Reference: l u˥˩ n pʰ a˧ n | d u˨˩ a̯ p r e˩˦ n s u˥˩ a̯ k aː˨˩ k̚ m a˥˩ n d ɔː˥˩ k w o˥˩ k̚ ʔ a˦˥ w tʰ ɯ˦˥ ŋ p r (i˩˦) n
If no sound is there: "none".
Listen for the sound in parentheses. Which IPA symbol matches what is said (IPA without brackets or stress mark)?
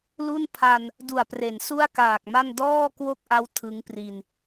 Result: i˧